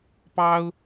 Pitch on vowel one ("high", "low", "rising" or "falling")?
high